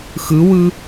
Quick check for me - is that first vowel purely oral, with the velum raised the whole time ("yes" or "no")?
yes